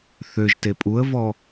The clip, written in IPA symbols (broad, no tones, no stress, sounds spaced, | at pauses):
θ ø ʒ t e pʼ u ə̯ v ɔ